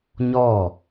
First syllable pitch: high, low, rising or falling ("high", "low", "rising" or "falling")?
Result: falling